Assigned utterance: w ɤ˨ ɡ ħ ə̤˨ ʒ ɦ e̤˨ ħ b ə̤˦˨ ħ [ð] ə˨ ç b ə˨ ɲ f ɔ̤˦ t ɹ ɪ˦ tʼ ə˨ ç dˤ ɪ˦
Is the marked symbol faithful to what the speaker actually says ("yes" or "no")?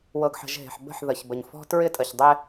yes